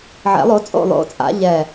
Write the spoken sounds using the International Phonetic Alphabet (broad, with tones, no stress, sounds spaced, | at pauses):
ʕ ɛ̰˨˩˦ lˠ o˨˦ t͡sʼ o̰˦˨ lˠ o̰˨˦ t͡sʼ a̰˨˦ ʎ ɛ˨˩